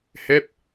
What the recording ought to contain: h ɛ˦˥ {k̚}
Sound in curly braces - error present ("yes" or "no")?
yes